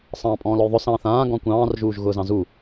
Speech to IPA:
sˤ ɑ̃ː pʼ ɔ̃ː l ɔ j ðˤ ʊ s ɑ̃ː θ ãː ɡ ɔ̃ kʷ ɑ̃ː r ʒ uː ʒ ɣ ʊː z ɑ̃ z u

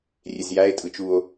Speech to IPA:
rʲ e z j æ e̯ tʼ ɯ t͡ʃ u o̯

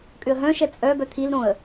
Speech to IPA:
kʼ ʏ ə̯ ɦ œ̃ ʃ ɛ t͡sʼ œ b œ t̪ʰ i l ɾ õ ə̯

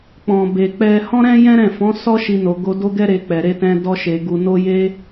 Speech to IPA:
k͡p ɔ̃˨ b e˨ k͡p ɛ˧ h ɔ̃˦ ɾ ɛ̃˦ j ɛ̃˦ ɾ ɛ̃˦˨ f ɔ̃˨˦ s ɔ˦ ʃ i˧ n o˨ ɡ o˧ d o˦ ɡ ɛ˦ ɾ e˧ k͡p ɛ˨ ɾ e˧ t ɛ̃˧ d ɔ˧ ʃ e˨ ɡ u˨ n o˧ j e˧

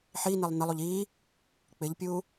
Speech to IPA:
ħ i n e lˠ n ɘ lˠ u ʎ i | k͡p ɪ ʎ pʲ u

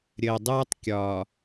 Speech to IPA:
ɾʲ əː˨ dˤ ɯː˦ tˤ kʲ ɒː˨

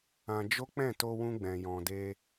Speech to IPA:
ã˧ d͡ʒ o˦ k͡p ɛ̃˦˨ t o˧ w ũ˧ ɡ͡b ɛ̃˨ j ɔ̃˨ d e˧

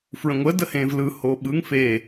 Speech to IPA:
f ɹ ə̃ ŋʷ ə d ə h ẽː v l ɯ h oː ɓ ɯ ŋ f eː

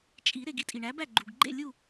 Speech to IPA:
t͡ʃʼ i˨˩˦ ɾ e˨ ɡ i˦ tʼ i˨ ɳ æ˨˥ b æ˥˨ ɡ͡ǃ u˨ ɡ ɡ͡ǃ ḛ˥˨ lʲ u˥˨

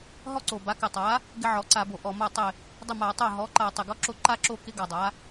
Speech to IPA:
ɦ ɔ˥ ǀ o˨˩ b a˩˥ k ɪ˨˩ tˤ a˩˥ | ɡ ɪ˥ ʕ ɔ˩˥ ǀ a˧˩˧ b o˨˩ ʔ ɔ˨˩ m a˥˩ tˤ ɪ˥˩ | dˤ ɪ˥˩ m a˧˩˧ tˤ o˥˩ ɦ ɔ˩˥ ǃ a˧˩˧ tˤ ɪ˨˩ ɡ ɔ˥ ǁ o˥ ǃ a˥ ǁ o˥˩ k ɪ˥ ɡ a˨˩ dˤ a˩˥

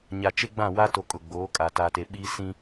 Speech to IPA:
ɲ a˨ t͡ʃ e˦ ɡ͡b ã˦˨ w a˦ t o˨ kʼ ʊ˨ ɡ͡b oː˨˦ kʼ a˨ t a˨ t e˨ ɓ iː˦ s ĩ˦

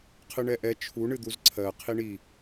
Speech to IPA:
qʰ ɨ ɳ ɛ ʔ ɛ t͡ʃʰ u ɳ ɨ d̪ u z ǀʰ ɜ qʰ i ɳ i

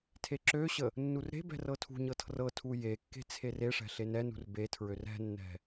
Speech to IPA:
tʰ e ǁ ø ɕ ə | nː u r ɾ e̤ b ɛ̤ r ɤ tʰ ṳ ɲ ɤ tʰ r ɤ tʰ u j e kː e̤ t͡sʰ e r e ʂ ɛ̤ ɬ e n ɛ n ṳ r b e tʰ ɹ ø r ɛ̤ nː ɛ̤

